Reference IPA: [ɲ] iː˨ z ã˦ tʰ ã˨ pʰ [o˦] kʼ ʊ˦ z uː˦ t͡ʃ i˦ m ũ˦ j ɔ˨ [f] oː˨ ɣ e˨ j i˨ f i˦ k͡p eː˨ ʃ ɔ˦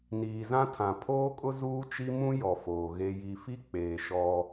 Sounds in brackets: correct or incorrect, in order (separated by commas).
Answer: incorrect, incorrect, correct